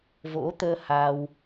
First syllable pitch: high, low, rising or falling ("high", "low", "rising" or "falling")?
rising